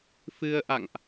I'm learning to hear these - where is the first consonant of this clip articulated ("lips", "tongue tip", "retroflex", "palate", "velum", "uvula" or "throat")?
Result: lips